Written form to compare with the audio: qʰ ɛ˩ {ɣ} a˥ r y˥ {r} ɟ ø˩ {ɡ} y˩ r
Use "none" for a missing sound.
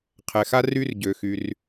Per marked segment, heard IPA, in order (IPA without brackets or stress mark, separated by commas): x, r, x